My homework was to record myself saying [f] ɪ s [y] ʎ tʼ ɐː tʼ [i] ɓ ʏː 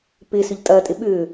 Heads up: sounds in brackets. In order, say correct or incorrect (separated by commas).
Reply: incorrect, incorrect, incorrect